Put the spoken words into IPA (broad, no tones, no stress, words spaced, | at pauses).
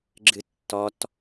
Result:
ɡ͡ǁɨtːɔt